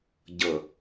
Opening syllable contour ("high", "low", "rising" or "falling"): low